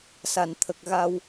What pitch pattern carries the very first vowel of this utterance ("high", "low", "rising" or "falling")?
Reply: low